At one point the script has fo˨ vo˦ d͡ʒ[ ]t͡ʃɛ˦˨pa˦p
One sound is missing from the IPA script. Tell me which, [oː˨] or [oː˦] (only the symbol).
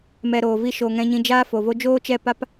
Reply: oː˦